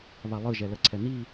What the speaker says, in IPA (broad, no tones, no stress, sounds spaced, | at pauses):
β a lˠ ɯ ʒ ɛ l ə ǀʰ ɛ n i